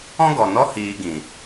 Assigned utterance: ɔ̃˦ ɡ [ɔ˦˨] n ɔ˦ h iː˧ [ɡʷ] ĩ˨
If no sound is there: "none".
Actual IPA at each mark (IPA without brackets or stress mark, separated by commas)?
ɔ˨, ɡ